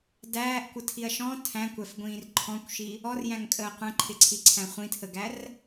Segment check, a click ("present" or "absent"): present